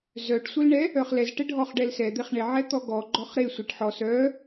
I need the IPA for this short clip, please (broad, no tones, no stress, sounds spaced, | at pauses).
z œ ʈ sʷ ə l ɳ ɛ | œ χ l ɛ z ʈ ɛ ɖʱ ɔ χ ɖ ɛ l s ɛ d̪ e χ ɳ e ʕ ɛ t̪ ɔ ɡ ɔ ɡ͡ǃ ɔ χ ɾ e sʷ e ʈ ħ ɔ s œ